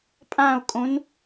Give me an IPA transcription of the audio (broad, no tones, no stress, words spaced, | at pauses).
pʼão̯kʼõn